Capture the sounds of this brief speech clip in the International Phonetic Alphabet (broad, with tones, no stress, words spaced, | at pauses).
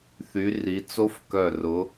θy˨˦ ri˨˦t͡so˦˥f kœ˧˩rʊ˨˦